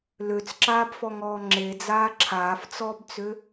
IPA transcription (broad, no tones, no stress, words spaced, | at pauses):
løt͡sǁaːbfɔŋɔː ŋ͡ǁed͡zaː ǁʰaːft͡sɔːbt͡sø